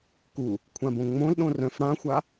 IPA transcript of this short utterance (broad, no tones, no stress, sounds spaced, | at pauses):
k u | kʷʰ ã b õ ŋ͡m õ l ɗ õ r œ̃ f ɽ ã xʷ a